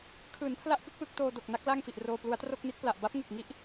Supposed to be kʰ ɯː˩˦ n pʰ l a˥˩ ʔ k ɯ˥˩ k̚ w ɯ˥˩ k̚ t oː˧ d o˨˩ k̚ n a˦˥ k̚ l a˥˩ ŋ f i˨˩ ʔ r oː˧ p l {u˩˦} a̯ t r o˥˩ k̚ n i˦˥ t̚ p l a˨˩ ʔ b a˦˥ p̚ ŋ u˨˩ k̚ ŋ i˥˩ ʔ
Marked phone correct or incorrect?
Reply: incorrect